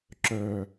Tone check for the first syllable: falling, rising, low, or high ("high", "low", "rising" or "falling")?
low